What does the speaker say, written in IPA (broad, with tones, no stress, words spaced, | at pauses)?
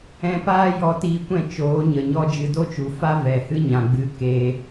ɛ̃˧paː˦jɔ˧ tiː˧kʷɛ̃˦˨ t͡ʃoː˨˦ɲə˨ɲɔ˦ d͡ʒɨ˧do˦t͡ʃu˨ fa˦vɛ˨hɨ˦ ɲã˧ɡ͡bɨ˦keː˦